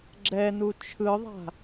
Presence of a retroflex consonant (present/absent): absent